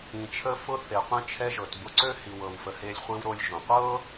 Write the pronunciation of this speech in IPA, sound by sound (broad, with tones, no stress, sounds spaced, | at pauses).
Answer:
ĩ˩ t͡ʃʰ ə˧ f ʊ˧ θ e˩ qʷ ĩ˧ t͡ʃʰ ɛ˧ ʒ ɤ˩ t b ʊ˧ ǀ ø˥ h i˩ w ɤ˩ w f ə˩ h e˧ lʲ χʷ i˧ w ɾ o˧ lʲ ʒ õ˩ qʷ ɤ˥